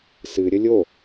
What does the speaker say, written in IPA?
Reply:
s ɨ ɾʲ ə lʲ o

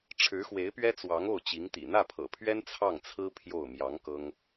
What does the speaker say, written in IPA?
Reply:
ʈ͡ʂʰ ɻ̩˧˥ x w e˧˥ ɪ̯ p ɥ ɛ˥ t͡s w ɑ˧˥ ŋ o˥˩ ʊ̯ t͡ɕ i˧˥ ŋ t̪ ḭ˨˩ n̪ ä˥˩ pʰ ɤ̰˨˩ pʰ ɥ ɛ˥ n t͡sʰ ɑ˥˩ ŋ t͡sʰ ɹ̩˥ pʰ j o˥˩ ʊ̯ m j ɑ˧˥ ŋ k ɤ˥ ŋ

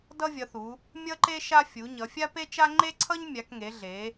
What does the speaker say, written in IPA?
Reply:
d ʌ˦ vʲ ʌ˩˧ θ u˩˧ | mʲ ʌ˦ ǃ e˦ ʃ a˦ fʲ u˩˧ ɲ ʌ˩˧ fʲ a˦ p e˦ t͡ʃ a˦ ŋ͡ǃ e˦ ǀʰ ʌ˦ ɲ mʲ a˩˧ k ŋ e˩˧ ɮ e˩˧

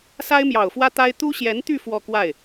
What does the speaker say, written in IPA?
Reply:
s a˥ ɪ̯ m j ɑ˨˩ ʊ̯ f w ä˥ t̪ a˥ ɪ̯ t̪ u˥ ɕ j ɛ˧˥ n t̪ y˥˧ f w ɔ˥˧ k w a˥˩ ɪ̯

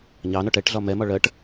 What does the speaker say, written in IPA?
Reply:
ɲ ɑ n ɔ ʈ ɛ ʈ ɮ ɒ m ɛ m ɒ ɭ ɜ ʈ

